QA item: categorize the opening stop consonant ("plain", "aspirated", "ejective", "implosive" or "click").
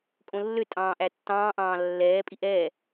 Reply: ejective